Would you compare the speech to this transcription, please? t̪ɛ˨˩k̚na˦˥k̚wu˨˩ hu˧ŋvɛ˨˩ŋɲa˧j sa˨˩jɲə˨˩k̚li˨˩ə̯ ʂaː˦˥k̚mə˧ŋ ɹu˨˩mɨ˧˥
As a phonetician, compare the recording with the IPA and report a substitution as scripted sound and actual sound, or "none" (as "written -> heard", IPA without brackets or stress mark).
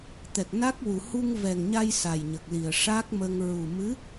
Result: none